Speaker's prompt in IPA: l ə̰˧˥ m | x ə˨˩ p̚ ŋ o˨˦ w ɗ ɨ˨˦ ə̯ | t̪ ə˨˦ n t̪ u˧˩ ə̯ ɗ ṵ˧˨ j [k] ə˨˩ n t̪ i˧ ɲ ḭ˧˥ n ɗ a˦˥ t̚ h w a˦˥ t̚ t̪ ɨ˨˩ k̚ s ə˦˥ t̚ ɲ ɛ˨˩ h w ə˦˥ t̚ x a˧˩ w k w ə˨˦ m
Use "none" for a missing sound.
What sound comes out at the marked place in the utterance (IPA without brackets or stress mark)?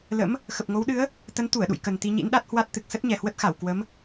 k